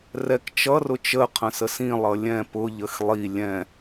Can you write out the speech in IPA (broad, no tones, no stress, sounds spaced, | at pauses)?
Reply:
r ɛ k t͡ʃ ʌ r ʊ t͡ʃ ə qʰ ə̃ s ə s ĩ lˠ ʌ lʲ ɛ̃ p ʊ ʎ ə x lˠ i lʲ ɛ̃